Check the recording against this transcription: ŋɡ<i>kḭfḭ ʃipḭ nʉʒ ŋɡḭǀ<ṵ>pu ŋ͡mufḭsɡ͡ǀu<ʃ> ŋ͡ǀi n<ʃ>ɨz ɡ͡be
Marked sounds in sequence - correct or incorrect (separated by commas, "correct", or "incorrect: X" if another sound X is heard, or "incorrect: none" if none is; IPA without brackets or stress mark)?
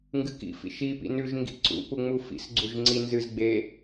incorrect: ɨ, correct, incorrect: ʒ, incorrect: z